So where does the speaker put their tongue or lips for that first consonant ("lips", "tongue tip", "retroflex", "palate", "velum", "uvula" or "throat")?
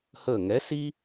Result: throat